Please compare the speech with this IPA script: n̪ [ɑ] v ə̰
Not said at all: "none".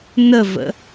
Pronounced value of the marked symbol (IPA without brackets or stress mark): ə